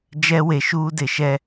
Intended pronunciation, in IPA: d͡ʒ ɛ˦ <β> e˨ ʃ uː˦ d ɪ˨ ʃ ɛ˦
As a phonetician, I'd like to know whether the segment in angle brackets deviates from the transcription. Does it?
yes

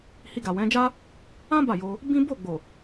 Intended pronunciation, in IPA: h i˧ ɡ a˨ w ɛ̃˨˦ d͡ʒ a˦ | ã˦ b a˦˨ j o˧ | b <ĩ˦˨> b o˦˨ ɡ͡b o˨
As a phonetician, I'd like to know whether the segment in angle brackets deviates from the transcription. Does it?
yes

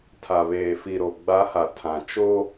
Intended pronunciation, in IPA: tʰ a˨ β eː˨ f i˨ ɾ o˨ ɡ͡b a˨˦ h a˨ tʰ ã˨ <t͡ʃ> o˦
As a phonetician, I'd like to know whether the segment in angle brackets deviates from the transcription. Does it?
no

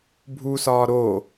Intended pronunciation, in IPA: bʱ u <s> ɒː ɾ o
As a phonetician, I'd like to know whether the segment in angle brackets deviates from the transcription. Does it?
no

